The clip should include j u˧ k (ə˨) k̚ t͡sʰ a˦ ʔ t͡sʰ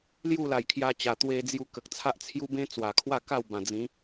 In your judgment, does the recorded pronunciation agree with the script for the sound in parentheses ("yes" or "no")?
yes